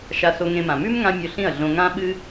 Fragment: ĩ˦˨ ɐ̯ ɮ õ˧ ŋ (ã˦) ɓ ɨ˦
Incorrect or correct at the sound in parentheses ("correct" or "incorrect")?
correct